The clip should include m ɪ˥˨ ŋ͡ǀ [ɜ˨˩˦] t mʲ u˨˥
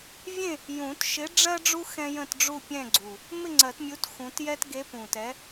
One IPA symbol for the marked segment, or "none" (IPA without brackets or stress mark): ɜ˨˩˦